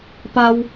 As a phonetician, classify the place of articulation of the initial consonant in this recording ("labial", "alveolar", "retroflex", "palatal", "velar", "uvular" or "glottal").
labial